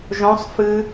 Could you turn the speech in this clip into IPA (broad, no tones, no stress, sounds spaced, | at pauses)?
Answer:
ʒ õ sˤ f ɨ